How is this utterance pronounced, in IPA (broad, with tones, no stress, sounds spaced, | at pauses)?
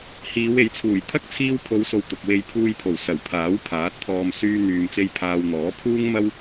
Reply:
h iː˨˧ w e˨˥ j t͡sʰ uː˨˩ j t̪ʰ ɐ˥ k̚ t͡sʰ iː˧ w pʰ o˨˧ w s o˨ w t̪ ʊ˨ k̚ w e˧ j pʰ uː˧ j pʰ o˨˩ w s ɐ˨˩ w pʰ aː˨˥ w pʰ aː˨˥ t̚ t̪ʰ ɔː˧ m s yː˥ n̪ yː˧ m t͡s e˥ j pʰ aː˧ w n̪ ɔː˨˥ pʰ uː˥ ŋ m ɐ˥ w